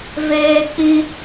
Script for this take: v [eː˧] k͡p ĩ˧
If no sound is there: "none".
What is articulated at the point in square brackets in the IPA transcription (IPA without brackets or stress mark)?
eː˧